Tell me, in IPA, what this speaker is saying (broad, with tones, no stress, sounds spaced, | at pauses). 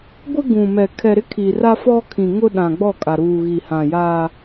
ɡʷ ɪ˦ ɡ ũ˨ m ɛ˨ kʰ ɛ˨ ɾ ɪ˦ kʰ i˨ r a˦ f ɔ˦ kʰ ĩ˨ ŋ ʊ˦ ɗ ã˨ ɡ͡b ɔ˦˨ kʼ a˨ ɾ uː˨ ɣ i˨ h ã˨ j aː˦